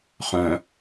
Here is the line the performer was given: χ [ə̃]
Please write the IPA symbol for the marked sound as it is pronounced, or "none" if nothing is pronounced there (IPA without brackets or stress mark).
œ̃